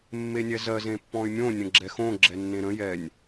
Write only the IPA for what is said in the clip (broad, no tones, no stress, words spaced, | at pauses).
mːenʲɛzɜz ẽpːɔ̃y̯mʲõ nʲə̃ɡ͡ǁɛxõ ɡ͡ǁɛnːẽɾə̃ jɛnʲ